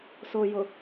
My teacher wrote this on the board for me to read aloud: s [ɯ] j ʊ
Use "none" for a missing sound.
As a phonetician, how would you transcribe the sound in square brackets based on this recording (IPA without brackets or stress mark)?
ʊ